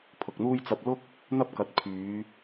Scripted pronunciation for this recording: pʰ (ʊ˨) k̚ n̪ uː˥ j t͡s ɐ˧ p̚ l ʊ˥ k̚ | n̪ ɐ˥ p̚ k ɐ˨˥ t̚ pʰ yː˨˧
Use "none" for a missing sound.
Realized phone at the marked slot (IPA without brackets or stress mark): ʊ˨